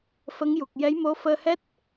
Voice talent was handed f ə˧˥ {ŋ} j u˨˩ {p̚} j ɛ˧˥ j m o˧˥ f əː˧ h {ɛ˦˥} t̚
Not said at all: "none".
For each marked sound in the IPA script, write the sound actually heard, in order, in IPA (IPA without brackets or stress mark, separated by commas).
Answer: ŋ, k̚, ɛ˦˥